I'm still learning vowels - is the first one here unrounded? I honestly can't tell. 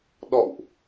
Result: no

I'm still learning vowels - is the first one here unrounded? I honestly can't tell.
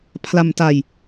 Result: yes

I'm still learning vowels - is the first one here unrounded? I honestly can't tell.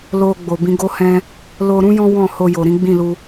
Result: no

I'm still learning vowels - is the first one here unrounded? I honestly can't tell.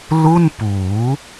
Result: no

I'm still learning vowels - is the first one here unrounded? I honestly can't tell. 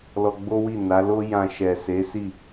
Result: no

